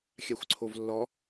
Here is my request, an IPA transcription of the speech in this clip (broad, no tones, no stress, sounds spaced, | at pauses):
xʲ a xʷ ǀʰ o v lː ɔ